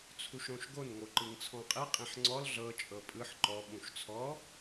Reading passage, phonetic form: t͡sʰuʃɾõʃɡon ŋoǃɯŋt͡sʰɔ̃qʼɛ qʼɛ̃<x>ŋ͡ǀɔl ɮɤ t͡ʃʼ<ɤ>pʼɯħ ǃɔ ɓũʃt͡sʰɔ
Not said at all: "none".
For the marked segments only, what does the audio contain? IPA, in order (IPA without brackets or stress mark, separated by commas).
ħ, ɤ